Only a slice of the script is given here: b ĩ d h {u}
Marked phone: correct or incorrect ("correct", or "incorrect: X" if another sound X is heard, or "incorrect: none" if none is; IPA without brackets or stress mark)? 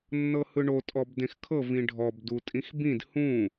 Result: incorrect: ũ